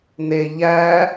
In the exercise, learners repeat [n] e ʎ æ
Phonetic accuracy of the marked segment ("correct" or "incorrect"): correct